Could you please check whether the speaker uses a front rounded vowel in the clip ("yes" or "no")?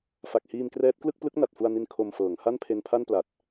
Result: no